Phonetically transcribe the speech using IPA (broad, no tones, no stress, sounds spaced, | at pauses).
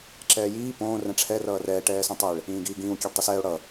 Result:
ǁ ɛː j iː p õː r ɛ̃ ʈ͡ʂʰ ɛ r ʌː r ɛː ʈ ɛː s õ tˤ ɛ ɭ | ĩː ɡ iː ɡ ĩː w kʲ ɛ ɖ tˤ i s ɛː o̯ ɽ ʌ